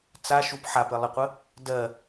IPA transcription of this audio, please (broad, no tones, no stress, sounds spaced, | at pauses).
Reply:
t͡s a ʃ u p ħ a p ɘ lˠ ə qʷ ə | d ɜ